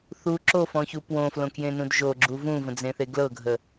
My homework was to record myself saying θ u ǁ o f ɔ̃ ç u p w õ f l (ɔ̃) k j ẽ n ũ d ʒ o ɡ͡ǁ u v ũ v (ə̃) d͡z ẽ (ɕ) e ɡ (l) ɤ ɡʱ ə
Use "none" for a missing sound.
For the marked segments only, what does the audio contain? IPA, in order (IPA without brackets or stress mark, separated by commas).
õ, ə̃, θ, l